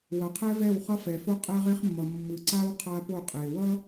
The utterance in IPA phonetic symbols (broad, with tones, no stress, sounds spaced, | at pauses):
w ʌ˨ qʰ ɛ˦ v ɛ˦˨ w χ ʌ˦ f ɛ˨ f o˦ qʼ ɛ˦ ʁ e˦ χ mː ʌ˨ mː ɯ˨ ǀ a˦ w qʰ a˦ p o˦˨ qʼ e˨ w ʌ˦